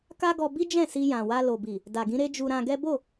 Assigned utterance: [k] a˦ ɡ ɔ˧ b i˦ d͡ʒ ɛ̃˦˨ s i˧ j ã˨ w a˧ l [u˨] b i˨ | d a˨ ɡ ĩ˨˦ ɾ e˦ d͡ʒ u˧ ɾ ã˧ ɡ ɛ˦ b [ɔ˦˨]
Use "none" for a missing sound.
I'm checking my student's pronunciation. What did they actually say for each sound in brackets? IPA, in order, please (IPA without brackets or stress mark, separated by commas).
k, o˨, o˦˨